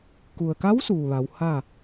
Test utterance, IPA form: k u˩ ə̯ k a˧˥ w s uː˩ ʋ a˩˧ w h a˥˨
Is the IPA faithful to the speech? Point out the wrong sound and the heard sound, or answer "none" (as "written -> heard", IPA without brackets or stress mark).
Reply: none